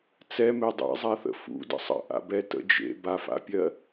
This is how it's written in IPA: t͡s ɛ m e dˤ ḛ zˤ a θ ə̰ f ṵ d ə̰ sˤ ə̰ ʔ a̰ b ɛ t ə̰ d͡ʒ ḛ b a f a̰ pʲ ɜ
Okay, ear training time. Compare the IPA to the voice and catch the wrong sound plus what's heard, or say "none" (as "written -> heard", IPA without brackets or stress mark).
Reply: none